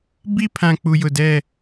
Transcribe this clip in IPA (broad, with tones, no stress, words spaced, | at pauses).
bi˦pʰã˨ k͡pu˨jʊ˨dɛ˦˨